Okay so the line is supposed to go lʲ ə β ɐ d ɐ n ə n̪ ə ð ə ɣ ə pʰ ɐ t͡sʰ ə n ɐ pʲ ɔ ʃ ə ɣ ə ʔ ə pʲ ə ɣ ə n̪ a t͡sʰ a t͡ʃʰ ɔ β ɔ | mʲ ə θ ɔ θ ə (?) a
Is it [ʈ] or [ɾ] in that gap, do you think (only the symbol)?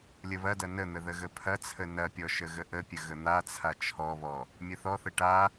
ʈ